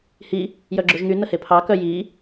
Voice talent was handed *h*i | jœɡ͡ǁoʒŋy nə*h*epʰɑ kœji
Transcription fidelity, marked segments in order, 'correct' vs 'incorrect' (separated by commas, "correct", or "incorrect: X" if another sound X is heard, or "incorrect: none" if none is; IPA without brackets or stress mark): correct, correct